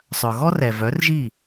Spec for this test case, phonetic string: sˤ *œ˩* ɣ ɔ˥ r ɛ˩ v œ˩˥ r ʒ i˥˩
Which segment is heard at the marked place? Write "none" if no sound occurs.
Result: œ˩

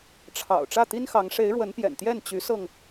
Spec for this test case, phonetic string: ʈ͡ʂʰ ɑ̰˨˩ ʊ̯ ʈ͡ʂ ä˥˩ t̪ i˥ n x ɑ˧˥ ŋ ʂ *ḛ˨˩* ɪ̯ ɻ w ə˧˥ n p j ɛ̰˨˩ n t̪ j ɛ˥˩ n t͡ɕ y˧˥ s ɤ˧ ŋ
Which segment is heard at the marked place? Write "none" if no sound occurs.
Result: e˧˥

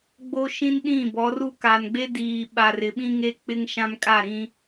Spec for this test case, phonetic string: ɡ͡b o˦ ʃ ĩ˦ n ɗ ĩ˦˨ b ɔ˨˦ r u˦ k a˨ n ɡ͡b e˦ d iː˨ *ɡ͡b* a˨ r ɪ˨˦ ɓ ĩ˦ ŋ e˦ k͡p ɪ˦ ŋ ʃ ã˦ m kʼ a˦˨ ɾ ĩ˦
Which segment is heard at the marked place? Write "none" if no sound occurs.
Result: ɓ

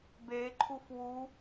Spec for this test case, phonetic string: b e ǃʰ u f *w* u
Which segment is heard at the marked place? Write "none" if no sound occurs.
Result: w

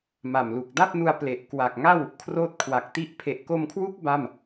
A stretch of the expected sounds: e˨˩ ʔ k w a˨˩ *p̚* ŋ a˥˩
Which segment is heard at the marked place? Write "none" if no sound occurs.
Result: k̚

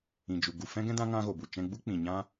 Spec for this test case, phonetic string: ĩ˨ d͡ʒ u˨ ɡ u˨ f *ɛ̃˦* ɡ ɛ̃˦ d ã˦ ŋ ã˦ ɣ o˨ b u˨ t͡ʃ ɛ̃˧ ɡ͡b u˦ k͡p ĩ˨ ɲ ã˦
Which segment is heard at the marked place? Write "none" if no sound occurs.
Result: ɛ̃˦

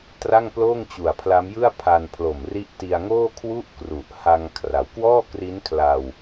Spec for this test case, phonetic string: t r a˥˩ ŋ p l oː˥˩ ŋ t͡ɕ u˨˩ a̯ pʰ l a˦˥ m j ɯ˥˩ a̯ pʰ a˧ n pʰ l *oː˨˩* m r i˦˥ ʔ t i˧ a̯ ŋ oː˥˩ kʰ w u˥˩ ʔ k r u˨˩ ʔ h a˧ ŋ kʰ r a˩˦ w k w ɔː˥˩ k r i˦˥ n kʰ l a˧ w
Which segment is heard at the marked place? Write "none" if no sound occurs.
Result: o˨˩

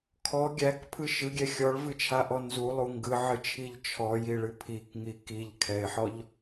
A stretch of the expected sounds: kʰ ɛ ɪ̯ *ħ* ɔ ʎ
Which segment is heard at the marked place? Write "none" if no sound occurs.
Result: ħ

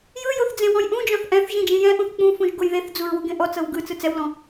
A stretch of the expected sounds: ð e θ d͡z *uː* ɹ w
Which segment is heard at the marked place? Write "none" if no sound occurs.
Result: u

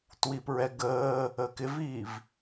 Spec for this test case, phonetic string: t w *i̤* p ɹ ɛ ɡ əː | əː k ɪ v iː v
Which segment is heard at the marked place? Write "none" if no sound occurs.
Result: i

